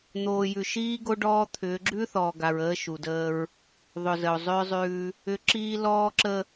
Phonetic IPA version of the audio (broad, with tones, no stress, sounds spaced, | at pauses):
n̪ oː˨ j ʉ˨ ʃ iː˦ ɡ o˦ ɖ ɔː˦ t̪ʰ ʏː˨˦ ɡ͡ǁ ʉ˦ θ ɔː˨ ɡ a˨ ɹ əː˦ ʃ u˨ d əː˦ ɹ | ðˤ ʏ˨ z ə˨ o̯ zˤ ʏː˦ zˤ ʉː˦ | ʏ˨˦ ǁ iː˦ l ɔː˦ ǁ ə˦